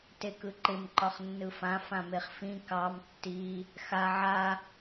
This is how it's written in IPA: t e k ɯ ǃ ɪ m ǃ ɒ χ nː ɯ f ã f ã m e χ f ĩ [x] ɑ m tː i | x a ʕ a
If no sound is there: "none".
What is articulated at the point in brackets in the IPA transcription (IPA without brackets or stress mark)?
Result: k